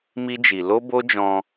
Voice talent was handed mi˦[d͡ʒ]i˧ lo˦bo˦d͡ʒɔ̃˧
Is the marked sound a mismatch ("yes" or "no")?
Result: no